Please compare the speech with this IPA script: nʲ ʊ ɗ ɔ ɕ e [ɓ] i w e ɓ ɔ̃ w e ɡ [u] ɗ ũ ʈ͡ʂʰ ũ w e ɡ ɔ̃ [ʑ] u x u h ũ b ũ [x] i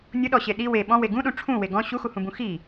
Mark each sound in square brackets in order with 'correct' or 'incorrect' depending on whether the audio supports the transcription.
incorrect: ɗ, incorrect: ũ, incorrect: ɕ, correct

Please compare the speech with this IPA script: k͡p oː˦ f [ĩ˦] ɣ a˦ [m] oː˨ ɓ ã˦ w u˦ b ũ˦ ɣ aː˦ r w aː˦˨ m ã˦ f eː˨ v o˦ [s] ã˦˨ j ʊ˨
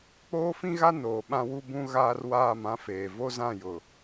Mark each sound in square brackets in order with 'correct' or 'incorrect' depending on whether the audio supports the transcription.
correct, incorrect: n, incorrect: z

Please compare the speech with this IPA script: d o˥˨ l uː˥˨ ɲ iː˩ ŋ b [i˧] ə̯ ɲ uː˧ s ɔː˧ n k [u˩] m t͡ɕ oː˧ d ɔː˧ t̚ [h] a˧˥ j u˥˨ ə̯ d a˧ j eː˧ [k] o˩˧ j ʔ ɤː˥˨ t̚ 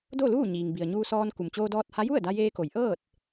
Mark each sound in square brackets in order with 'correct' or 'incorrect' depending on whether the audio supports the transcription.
incorrect: i˩, correct, correct, correct

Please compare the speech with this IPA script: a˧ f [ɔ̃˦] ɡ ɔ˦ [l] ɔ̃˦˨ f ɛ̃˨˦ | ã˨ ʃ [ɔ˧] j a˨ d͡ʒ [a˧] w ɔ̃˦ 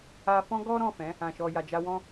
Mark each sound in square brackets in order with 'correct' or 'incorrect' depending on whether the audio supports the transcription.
correct, incorrect: ɾ, incorrect: ɔ˨, correct

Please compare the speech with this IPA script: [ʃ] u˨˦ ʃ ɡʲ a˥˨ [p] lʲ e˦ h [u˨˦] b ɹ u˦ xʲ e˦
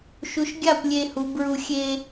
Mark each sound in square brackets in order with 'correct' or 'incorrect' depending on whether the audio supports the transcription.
correct, correct, correct

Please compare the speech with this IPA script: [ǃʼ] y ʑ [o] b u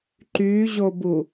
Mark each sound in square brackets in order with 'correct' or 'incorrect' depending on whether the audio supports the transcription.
incorrect: ǃ, correct

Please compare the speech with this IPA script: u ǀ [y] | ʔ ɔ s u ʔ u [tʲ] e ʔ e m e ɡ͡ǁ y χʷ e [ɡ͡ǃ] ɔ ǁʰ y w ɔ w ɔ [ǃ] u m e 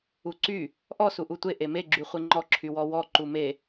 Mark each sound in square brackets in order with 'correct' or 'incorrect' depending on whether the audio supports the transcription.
correct, incorrect: tʷ, incorrect: ŋ͡ǃ, correct

